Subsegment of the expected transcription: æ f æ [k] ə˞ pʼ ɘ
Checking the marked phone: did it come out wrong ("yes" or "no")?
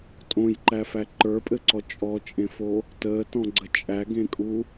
yes